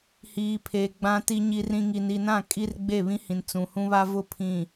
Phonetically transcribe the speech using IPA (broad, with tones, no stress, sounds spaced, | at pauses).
h iː˨ pʰ eː˨ ɡ͡b ã˨ t i˨ ɲ i˨ r ĩ˨ ŋ i˨ n i˨ n ã˦˨ kʼ i˦ r ɡ͡b e˦˨ β ĩ˦ h ĩ˨ n t͡s ũ˨ h ũ˦ β a˦ v ʊ˦ pʰ ĩ˨